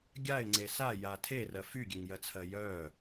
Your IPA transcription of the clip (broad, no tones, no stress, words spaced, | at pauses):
ɡʲaɪ̯ŋ͡ǀe saja tʰerɜ fyɡʲeŋjɜt͡sʰɜ jœ